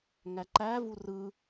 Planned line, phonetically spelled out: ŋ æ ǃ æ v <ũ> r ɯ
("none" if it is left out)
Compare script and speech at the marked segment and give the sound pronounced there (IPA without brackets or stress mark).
u